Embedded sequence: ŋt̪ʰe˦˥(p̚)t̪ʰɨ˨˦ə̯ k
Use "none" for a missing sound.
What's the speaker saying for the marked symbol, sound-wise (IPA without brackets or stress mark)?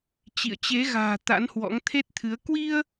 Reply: t̚